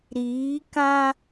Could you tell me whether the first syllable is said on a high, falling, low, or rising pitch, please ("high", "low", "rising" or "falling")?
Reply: rising